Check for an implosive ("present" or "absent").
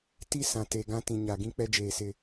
absent